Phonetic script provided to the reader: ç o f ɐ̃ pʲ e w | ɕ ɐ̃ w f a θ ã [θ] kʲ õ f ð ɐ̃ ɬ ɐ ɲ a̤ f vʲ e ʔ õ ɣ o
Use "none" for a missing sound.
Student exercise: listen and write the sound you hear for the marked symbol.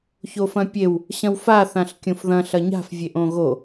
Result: ɬ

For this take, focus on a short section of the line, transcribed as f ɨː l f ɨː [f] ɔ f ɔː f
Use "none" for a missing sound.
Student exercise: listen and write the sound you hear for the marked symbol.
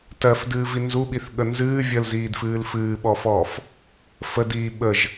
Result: ɓ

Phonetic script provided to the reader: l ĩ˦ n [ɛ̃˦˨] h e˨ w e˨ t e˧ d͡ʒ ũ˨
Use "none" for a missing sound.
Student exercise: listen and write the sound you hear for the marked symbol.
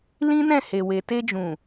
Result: ɛ̃˦˨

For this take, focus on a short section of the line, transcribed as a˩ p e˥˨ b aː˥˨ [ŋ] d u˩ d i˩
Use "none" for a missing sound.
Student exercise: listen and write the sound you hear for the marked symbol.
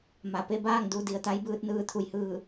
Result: ŋ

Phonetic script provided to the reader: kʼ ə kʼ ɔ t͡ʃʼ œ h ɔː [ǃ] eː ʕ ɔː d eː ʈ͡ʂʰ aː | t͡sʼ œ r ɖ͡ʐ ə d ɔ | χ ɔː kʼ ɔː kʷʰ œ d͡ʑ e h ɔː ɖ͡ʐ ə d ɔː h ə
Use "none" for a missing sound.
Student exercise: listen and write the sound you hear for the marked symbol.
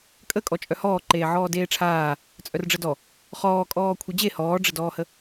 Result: ǃ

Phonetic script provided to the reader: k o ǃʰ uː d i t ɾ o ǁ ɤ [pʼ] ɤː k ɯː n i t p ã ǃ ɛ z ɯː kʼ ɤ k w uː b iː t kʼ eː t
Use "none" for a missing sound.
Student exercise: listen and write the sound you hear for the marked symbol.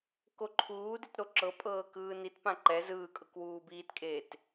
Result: pʼ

